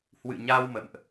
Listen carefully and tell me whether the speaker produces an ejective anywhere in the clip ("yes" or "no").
no